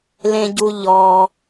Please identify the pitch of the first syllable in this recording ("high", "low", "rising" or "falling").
low